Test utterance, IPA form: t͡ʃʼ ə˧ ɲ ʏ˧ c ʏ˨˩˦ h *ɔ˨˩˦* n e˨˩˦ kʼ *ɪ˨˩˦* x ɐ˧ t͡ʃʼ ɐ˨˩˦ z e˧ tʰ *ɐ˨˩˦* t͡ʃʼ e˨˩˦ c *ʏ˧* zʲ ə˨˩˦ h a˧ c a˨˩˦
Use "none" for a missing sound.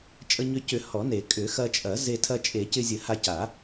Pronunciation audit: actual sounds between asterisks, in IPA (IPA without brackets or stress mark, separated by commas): ɔ˨˩˦, ʏ˨˩˦, ɐ˧, ɪ˧